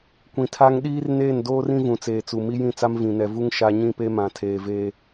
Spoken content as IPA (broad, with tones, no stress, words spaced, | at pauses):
kʷĩ˨tʰa˦ŋ ɗiː˦rneː˦˨n doː˦rĩ˦ vũ˨t͡seː˨t͡su˨ mi˦jĩ˦˨t͡sa˦m vĩ˨ nɛ˨vu˦ŋ ʃa˦ ɲĩ˦pe˦mã˨ tʰeː˨ve˦